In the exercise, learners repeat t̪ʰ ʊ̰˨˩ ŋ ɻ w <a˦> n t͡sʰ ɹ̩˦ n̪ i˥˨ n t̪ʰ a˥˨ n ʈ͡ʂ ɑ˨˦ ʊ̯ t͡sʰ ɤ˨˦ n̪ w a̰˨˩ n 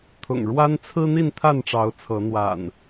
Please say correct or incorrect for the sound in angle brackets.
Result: correct